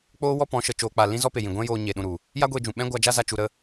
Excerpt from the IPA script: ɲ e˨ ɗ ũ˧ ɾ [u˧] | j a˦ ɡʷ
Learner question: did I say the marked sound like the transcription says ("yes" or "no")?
no